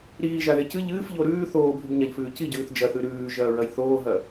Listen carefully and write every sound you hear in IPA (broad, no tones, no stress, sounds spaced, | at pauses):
ɾ iː ʒ a ð e c ɨ ʎ ɨː f ʎ o ɾ ʉː θ oː bʱ ʉ b ɲ a ʎ f ʉː c i ɟ ʉː θ d͡ʒ ɐ θ ʉ ɾ ʉː ʒ ɐː ɹ ɐ j θ oː ɦ ɐ